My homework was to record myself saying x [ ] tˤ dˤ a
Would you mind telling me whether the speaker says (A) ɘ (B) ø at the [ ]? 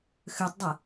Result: B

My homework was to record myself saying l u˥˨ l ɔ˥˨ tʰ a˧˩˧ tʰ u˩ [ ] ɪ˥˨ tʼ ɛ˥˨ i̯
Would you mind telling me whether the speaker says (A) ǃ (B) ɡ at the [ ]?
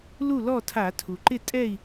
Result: A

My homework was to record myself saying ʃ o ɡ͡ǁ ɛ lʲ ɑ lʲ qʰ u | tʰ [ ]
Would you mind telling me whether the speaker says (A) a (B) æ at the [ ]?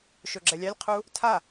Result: A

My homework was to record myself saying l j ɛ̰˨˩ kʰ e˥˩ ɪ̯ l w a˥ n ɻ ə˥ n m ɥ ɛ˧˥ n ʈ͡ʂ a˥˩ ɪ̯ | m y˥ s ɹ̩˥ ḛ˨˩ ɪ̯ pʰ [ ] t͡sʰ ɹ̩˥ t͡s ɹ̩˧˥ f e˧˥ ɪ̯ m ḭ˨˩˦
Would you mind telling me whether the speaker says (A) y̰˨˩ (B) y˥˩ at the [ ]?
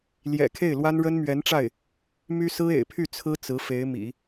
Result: B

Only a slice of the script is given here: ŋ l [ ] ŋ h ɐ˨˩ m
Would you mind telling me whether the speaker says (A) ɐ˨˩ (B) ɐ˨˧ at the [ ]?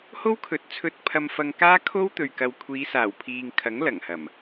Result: A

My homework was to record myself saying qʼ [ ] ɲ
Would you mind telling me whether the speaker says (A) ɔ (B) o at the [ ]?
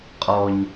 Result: A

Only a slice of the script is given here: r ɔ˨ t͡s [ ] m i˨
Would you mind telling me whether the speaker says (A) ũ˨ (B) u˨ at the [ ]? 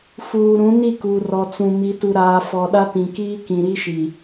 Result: A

